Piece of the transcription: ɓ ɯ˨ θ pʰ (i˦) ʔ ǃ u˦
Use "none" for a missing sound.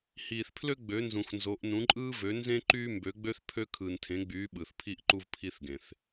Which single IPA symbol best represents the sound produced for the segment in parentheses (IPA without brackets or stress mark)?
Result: i˦